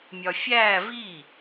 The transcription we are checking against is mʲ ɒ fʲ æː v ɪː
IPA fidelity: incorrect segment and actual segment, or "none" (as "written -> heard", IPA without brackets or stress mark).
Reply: ɪː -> iː